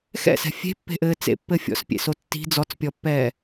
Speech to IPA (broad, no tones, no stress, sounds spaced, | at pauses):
x ɛ̰ s ɛ̤ fʲ e̤ pː e̤ ʔ ɘː t͡s ḛ pː ɘ fʲ ɔ̰ s pʲ ḛ s o tː i̤ d͡z ɔ t͡s pʲ ɔ pː ɛː